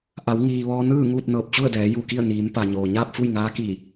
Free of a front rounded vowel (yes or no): yes